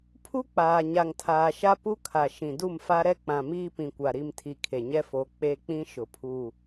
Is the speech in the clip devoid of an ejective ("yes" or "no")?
yes